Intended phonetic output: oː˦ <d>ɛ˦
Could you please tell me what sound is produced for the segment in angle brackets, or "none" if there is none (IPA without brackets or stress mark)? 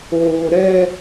ɾ